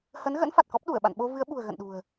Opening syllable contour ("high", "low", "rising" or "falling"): rising